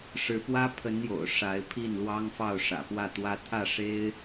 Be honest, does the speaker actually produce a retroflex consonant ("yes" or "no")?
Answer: yes